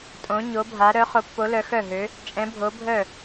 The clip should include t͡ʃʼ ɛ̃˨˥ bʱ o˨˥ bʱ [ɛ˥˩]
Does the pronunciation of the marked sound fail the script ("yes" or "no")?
yes